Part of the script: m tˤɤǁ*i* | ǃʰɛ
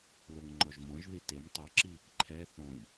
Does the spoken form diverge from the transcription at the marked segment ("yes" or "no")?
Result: no